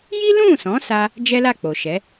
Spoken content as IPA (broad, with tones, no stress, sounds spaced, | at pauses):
j i˦ l ũ˦˨ s ɔ̃˨˦ s a˦ | d͡ʒ ɛ˦ l a˦˨ k͡p o˨ ʃ ɛ˨˦